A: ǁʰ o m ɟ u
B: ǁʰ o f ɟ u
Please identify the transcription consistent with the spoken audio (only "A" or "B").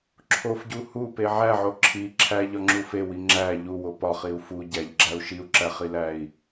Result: B